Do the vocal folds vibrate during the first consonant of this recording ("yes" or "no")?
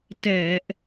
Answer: no